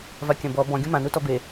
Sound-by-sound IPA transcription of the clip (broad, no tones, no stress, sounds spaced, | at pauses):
v a kʲ ɐ̃ b ɔ b ɔ̃ ɡʲ ũ m ã n u t ɔ b e